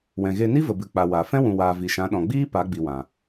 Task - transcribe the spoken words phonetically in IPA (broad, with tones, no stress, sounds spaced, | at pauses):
w ɛ̃˨ ɣ e˧ n i˦ v ə˨ b ɨ˨ k͡p a˨ w a˨ f ɛ̃˦ w ũ˨ w aː˨ v i˨ ʃ ã˨˦ ɗ ɔ̃˨ ɡ͡b iː˦ p a˨˦ ɡ͡b i˨ w ã˨